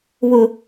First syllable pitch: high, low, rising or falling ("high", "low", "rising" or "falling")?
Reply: low